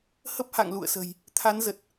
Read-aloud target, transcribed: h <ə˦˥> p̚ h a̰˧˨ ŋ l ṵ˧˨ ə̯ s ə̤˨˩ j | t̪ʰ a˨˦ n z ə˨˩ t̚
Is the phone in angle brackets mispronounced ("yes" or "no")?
no